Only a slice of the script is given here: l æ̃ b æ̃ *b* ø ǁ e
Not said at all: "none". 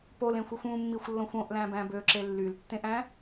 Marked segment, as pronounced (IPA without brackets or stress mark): b